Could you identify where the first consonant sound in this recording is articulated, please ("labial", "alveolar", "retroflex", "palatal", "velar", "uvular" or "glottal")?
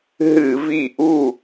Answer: glottal